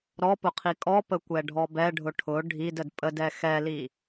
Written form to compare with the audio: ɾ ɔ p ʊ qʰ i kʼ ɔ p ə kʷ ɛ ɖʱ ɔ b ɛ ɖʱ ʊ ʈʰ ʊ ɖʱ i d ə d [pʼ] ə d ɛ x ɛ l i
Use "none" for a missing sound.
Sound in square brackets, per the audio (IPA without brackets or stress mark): pʼ